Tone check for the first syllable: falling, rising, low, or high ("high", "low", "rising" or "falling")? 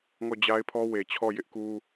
falling